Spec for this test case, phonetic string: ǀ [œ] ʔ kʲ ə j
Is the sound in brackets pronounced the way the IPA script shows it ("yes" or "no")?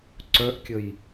yes